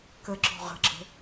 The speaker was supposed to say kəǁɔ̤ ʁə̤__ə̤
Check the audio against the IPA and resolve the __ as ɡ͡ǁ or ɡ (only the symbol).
ɡ͡ǁ